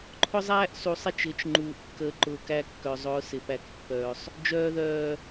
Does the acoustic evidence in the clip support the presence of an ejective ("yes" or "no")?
no